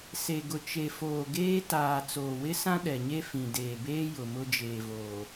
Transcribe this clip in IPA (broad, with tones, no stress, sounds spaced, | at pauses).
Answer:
s e˨ ɡ ʊ˨ t͡ʃ e˨ f oː˨ ɡ eː˦ t aː˨ t͡s oː˨ w ɪ˦ s ã˦ ɗ ɛ˨ ɲ e˦ f ĩ˨ d eː˨ b eː˦ j ʊ˨ m ʊ˦ d͡ʒ eː˨ v oː˨